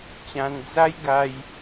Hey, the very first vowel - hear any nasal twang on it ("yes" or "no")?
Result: yes